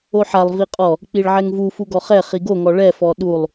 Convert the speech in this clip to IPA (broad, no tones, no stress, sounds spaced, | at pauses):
o ħ a lˠ v i qʼ ɔ | k͡p i ɭ ʕ ɛ ŋ v u f u ɡ ɔ χ ɛ χ i ɡ o ŋ ɔ ɭ ɛ f ɔ ɗ u lˠ